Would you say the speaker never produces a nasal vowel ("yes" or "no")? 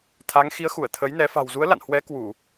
yes